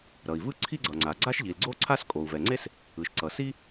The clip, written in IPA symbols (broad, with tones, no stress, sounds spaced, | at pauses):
ɾ ʌ˩ i̯ v ɯ˥ ǀʰ i˥ ɡ͡ǀ ʌ˩ ŋ͡ǀ a˩ ɡ͡ǀ a˥ ʃ ʎ i˩ l ɡ͡ǀ o˥ ǀʰ a˥ s kʼ o˩ u̯ v ɛ˩ ŋ͡ǀ e˥ s | ɯ˩ ʃ ǀ ʌ˩ s i˥